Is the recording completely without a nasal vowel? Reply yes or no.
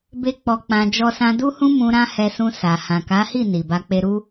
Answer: no